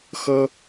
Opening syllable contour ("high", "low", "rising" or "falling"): high